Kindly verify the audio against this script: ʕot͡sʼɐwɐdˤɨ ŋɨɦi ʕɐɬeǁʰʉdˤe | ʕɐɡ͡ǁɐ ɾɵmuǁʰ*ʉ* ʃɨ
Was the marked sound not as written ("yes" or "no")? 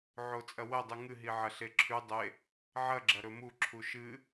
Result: yes